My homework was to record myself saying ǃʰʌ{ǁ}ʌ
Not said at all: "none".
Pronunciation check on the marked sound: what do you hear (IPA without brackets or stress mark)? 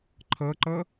ǃ